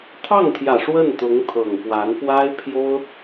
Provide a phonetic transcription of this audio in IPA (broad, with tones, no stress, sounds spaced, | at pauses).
t̪ʰ ɑ˥˩ ŋ t̪ʰ j ä˨˩ ʂ w ə˥˩ n t̪ ʊ˧˥ ŋ t̪ʰ ɤ˨˩ ŋ p w a˧˥ n p w a˥ ɪ̯ pʰ j o˥ ʊ̯